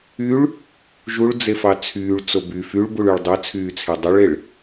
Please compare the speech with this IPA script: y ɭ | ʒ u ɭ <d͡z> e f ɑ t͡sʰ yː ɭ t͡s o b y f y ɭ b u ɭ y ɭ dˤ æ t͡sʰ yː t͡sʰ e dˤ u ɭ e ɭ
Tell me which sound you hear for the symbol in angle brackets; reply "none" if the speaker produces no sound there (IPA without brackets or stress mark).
d͡z